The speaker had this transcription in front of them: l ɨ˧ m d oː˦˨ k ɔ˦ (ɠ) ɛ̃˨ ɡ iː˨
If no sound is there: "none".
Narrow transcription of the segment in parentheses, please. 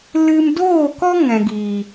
ŋ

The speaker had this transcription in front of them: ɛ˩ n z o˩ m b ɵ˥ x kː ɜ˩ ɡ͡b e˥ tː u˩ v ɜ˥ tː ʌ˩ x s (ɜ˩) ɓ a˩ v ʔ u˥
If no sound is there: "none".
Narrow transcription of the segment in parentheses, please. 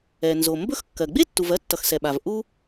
ɛ˩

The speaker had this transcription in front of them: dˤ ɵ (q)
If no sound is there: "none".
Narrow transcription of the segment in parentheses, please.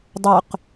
q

